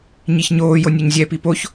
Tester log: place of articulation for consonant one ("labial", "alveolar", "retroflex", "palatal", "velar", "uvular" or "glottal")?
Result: palatal